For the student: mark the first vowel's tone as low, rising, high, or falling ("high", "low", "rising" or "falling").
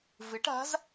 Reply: rising